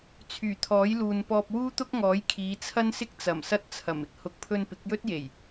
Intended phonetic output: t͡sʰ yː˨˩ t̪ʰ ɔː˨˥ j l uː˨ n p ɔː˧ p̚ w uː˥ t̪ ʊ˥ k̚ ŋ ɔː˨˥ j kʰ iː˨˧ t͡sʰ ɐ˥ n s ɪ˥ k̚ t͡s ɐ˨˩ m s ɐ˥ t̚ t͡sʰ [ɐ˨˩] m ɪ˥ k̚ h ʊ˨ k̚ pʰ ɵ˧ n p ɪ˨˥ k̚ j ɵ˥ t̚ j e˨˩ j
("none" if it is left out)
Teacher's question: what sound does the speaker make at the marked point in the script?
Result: ɐ˨˩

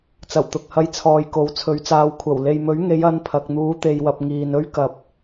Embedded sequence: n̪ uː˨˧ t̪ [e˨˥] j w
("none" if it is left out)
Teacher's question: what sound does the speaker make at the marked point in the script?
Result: e˨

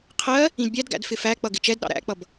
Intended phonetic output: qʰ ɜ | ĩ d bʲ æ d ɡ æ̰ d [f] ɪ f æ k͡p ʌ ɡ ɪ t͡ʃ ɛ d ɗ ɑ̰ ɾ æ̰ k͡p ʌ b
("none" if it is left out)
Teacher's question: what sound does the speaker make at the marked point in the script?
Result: f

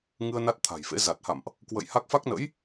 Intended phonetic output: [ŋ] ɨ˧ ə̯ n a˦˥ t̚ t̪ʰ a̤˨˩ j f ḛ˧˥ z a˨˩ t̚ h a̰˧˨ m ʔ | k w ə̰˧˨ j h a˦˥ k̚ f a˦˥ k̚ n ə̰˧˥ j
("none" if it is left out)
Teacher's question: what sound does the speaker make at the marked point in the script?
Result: ŋ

